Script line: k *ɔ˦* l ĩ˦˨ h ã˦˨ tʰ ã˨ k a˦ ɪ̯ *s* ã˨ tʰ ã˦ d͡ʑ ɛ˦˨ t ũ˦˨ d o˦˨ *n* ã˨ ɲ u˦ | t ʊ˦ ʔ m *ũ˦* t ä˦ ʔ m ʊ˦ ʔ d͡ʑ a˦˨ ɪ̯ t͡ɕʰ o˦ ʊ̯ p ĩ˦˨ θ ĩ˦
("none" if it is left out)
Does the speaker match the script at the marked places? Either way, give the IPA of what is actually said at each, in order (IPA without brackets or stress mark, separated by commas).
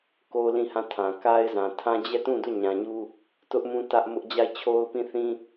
o˦, z, ɲ, ũ˦